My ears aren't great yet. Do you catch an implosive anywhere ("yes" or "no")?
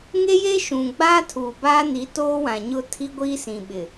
yes